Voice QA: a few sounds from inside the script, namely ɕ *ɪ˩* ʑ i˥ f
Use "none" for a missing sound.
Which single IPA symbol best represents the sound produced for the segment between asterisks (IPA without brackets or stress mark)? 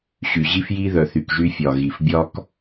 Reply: y˩